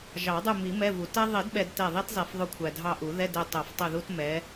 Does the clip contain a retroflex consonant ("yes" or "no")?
no